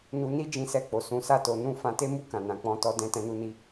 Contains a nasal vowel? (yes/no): yes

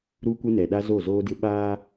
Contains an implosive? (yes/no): yes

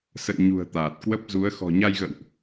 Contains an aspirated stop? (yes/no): no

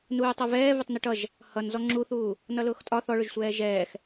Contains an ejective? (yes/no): yes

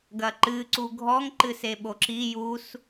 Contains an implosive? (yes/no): yes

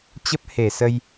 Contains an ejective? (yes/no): no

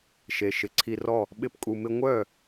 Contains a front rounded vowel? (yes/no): yes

